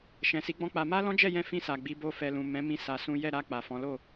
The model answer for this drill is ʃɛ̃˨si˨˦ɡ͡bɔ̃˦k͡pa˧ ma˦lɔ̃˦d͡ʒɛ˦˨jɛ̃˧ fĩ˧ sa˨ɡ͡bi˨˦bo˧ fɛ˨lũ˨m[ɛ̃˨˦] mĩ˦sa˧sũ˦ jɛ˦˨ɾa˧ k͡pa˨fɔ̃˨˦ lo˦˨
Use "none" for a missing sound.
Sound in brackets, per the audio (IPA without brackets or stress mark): ɛ̃˨˦